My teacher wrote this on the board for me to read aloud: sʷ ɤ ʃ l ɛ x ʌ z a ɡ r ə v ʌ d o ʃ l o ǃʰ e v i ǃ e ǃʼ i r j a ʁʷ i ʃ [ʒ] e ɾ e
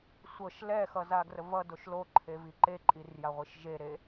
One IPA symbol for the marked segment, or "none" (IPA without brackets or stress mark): ʒ